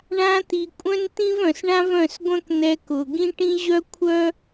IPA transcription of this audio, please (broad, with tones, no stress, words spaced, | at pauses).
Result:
ɳã˧t̪i˨ kʷʼœ̃˦nt̪ĩ˦vœ̃˨s ɳã˦vœ̃˦˨sɡʷœ̃˦k n̪ɛ˧kʊ˨ ɡĩ˦ʈĩ˦ʑœ˦ kʷʰœ˦